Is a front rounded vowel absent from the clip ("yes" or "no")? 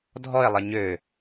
no